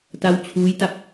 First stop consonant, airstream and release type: plain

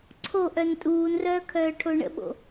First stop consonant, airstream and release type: click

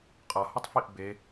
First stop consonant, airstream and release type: ejective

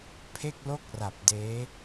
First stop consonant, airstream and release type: aspirated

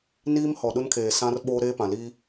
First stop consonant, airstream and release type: implosive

